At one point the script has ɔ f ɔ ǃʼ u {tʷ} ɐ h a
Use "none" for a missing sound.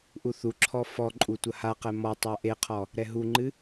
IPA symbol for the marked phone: tʷ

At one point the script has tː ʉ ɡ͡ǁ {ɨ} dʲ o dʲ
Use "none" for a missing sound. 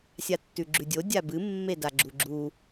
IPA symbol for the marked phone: ʉ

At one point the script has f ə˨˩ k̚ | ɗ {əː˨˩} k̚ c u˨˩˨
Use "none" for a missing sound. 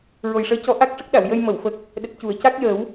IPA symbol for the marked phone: ə˨˩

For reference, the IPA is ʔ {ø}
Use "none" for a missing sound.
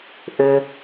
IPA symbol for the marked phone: ø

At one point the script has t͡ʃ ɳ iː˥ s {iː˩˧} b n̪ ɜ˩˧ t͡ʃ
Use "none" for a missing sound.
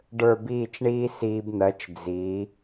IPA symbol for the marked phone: iː˧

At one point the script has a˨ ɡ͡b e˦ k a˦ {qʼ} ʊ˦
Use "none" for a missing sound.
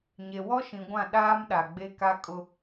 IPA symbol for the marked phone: kʼ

